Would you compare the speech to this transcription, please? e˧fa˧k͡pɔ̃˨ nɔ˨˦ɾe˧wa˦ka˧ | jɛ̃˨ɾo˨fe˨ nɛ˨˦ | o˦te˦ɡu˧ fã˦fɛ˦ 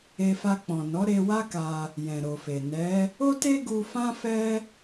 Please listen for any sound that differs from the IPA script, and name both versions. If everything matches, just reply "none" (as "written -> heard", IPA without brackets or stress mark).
none